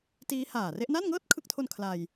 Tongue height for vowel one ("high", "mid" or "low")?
high